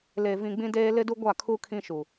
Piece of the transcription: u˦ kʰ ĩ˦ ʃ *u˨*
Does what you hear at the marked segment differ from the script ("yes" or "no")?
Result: no